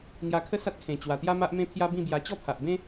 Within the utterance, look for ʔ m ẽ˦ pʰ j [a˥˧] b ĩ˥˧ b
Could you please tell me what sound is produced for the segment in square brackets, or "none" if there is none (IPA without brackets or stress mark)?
a˦